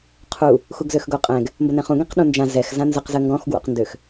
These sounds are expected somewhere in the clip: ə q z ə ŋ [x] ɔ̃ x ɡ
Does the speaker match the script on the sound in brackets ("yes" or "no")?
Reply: no